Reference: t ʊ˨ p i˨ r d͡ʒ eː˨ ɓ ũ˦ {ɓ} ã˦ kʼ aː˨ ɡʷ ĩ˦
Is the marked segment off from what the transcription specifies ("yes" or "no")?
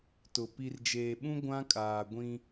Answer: yes